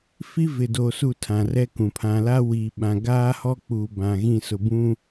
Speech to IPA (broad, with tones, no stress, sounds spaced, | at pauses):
f i˦ v ɪ˨ d o˨ s u˦˨ tʰ ã˨ r ɛ˦ k ũ˨ pʰ ã˨ l a˦ w iː˨ ɓ ã˨ ɡ aː˦ h ɔ˦ k͡p uː˨ b ã˨ ɣ ĩ˦˨ s ʊ˨ b ũ˦